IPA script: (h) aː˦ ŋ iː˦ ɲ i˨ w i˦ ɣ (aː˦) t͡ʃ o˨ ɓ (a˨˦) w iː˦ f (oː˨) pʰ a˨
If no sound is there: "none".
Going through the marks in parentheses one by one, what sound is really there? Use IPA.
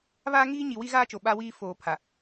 β, aː˦, a˦, oː˨

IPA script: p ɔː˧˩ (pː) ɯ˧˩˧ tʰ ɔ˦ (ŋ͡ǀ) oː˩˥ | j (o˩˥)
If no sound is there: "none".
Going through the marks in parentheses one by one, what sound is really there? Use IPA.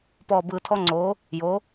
b, ŋ͡ǀ, o˩˥

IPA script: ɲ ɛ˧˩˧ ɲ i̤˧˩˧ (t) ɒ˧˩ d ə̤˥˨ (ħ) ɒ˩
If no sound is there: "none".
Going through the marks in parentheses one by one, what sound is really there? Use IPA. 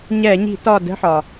t, ħ

